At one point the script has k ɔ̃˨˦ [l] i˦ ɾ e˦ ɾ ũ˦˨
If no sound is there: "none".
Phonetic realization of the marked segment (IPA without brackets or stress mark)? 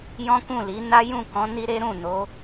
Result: n